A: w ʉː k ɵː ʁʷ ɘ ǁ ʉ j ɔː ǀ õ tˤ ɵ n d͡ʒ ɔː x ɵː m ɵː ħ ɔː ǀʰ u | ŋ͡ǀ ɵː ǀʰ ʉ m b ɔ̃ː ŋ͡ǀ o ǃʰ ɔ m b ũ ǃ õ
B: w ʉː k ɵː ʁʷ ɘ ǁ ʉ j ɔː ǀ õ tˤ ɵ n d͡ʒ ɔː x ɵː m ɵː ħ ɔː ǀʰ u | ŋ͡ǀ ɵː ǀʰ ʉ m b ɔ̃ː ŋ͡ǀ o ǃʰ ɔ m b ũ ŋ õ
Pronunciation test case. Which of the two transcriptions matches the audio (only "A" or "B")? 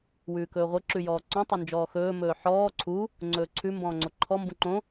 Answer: A